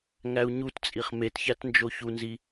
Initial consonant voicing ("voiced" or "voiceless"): voiced